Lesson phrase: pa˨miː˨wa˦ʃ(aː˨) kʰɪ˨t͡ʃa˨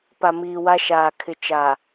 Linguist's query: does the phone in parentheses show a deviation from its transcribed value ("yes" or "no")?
no